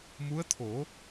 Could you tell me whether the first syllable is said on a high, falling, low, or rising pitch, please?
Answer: rising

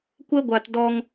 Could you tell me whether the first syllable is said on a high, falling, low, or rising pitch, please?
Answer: high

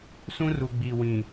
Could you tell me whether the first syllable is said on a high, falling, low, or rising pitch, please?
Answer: high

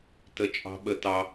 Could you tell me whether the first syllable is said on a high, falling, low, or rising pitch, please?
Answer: high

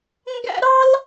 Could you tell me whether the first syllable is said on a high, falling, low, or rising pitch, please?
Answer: high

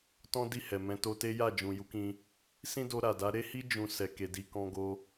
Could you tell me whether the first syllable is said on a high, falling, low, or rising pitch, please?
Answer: high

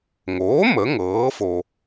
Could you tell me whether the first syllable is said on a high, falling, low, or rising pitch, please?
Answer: rising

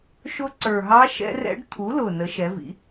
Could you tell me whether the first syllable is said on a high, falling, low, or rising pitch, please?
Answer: rising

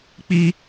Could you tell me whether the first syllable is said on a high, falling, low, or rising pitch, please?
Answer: high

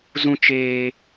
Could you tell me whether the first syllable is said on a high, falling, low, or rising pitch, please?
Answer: high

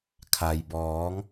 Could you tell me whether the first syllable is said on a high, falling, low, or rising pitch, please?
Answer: low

